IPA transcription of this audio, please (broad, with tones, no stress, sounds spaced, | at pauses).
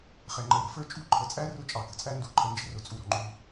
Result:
χ ɛ˩ ŋ͡ǃ ə˩ ɪ̯ ɾ ə̤˩ f ə˞˥ t͡ʃʼ ṳ˥ ǃʰ ə˩ t͡sʼ æ˥ r ʊ˥ t͡ʃʼ ɑ˩ k ə̤˩ t͡sʼ æ˥ n d u˩ ǃʰ ə˩ n d͡ʒ ə̤˥ r ʊ˩ t͡sʼ u˩ ɾ ɔ̤˩ ŋ͡ǃ u˩